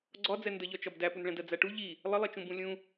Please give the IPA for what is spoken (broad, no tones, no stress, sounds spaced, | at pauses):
ɡ͡ǀ ɒ d͡z ɛ n d ə ʎ ɒ t͡ʃ ɒ b d æ p u n ɭ ɛ̃ d ɜ d͡z æ ʈ u ʎ i | lˠ ə lˠ i t͡ʃ ũ b ũ lʲ ũ